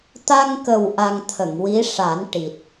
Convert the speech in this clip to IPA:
t̪ a˧ ŋ k ə˨˩ w ʔ a˧ ŋ t̪ʰ ə˨˩˨ ŋ w i˧˥ ʂ a˨˩˦ n ʈ i˨˩ t̚

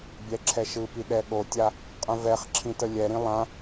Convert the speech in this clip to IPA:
bʲ ɛ ǁʰ ɛ ʃ ɯ p i ɗ ɛ ɠ o tʲ a | qʼ ə̃ v ɛ χ ǁʰ ĩ t ə lʲ ɛ ɾ ĩ lˠ ã

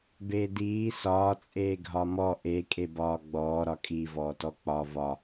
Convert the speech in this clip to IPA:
b eː d iː s ɒː t͡sʼ eː ɡʱ ɒ m ɔ ʔ e kʼ e b ɒː ɡ͡b ɔː ɾ ɒ kʼ i v ɔː t ɔ k͡p ɒ v ɒ

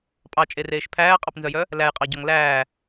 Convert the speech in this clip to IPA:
pʼ ɑ t͡ʃʼ e r eː ʃ pʰ æː qʼ ɑ p n z œ j œ | l æ j qʼ ɑ ɟ ɔ ŋ l æː

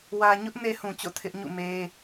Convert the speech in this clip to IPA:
w ä˨ ɲ ʊ˦ ʔ n e˦ h ũ˨ t͡ɕ o̰˦˨ tʰ ɪ˦ ʔ ɲ ṵ˦˨ m e˦

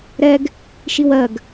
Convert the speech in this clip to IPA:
ɾ ɛ ɡ | ʃ i w ɜ ɡ

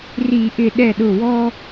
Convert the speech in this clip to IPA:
r i˧˩˧ ʔ ɪ˧˩ ɗ ɛ˧˩ ɗ ʊ˧˩ w ɔ˦

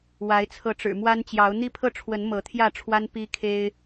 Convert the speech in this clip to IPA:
w a˨˦ ɪ̯ t͡sʰ ɤ˨˦ ʈ͡ʂ ɻ̩˨˩ m w a˦ n t͡ɕ j ɑ˨˦ ʊ̯ n̪ i˦ pʰ ɤ˥˨ ʈ͡ʂʰ w ə˨˦ n m ɤ˨˦ t̪ʰ j ä˥˨ ʈ͡ʂʰ w a˦ n p i˦ kʰ e˦ ɪ̯

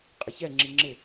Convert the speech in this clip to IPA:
qʼ ɪ ç ɛ ŋ͡ǁ i ŋ͡ǁ ɪ

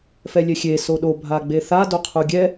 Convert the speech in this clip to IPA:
f ɛ lʲ ɛ xʲ e s o ɗ o bʱ a ɡ͡b e θ a d o qʰ u ɡʲ ɛ

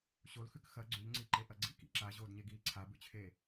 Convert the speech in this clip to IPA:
ɕ o l x ʉ k x ɐ ɡ͡ǀ ʉ ʎ ŋ͡ǀ i ǃ e ʔ ɐ ɡ͡ǀ ḭ k ḭ ǁ a ʑ oː d ɲ e ɡ iː ǀʰ a b ʉ t͡ɕʰ eː

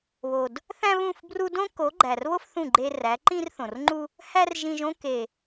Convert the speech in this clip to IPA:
β o˨ d | θ æ̃˦ β ũ˦˨ f b r u˧ d õ˦ k o˨˦ ɡ͡ǃ æ˨ r β o˦ f θ ũ˦˨ ɡ͡ǃ e˧ r æ˨˦ ǃ ĩ˦ r θ õ˨ r ŋ͡ǃ u˦ | h æ˦ r ʒ ĩ˧ ʒ õ˦ k e˨

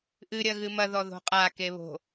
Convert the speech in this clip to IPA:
ʔ ɨ ɾʲ ɐ ɣ ɨ m ɐ ð ɔ ð o̤ qʼ a k e β o̤

